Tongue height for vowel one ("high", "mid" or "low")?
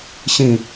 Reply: high